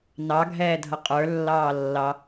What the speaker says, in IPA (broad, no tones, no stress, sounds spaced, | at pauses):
n ɑ ɡʱ ɛː dʱ ʌ qʼ ə˞ lː ɑː lː ɑ